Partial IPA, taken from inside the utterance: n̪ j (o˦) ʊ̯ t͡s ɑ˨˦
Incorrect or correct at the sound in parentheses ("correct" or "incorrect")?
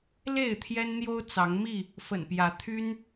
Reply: correct